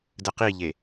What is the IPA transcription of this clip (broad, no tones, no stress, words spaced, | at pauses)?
dəqiʎe